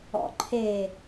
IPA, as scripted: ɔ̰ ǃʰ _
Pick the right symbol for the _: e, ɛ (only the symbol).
e